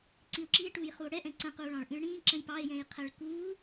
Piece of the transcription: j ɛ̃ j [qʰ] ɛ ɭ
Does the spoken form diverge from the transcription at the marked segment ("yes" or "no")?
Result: no